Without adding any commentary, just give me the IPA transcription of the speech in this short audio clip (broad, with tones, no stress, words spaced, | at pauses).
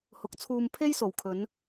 hʊ˨˥k̚t͡sʰuː˧m pʰe˥jso˨˩wkʰɵ˨˧n